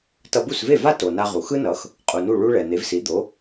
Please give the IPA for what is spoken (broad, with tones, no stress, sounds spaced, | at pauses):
t ʌ˧ b u˥˩ s v e˥˩ v a˥ t o˩ n a˧ ʁ u˩ x ɯ˥ n ʌ˩˥ x | qʼ u˩ n u˥˩ ɭ u˥ ɭ ɛ˩ n̪ e˩˥ v s i˩˥ d̪ o˩˥